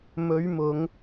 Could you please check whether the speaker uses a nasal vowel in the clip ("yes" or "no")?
no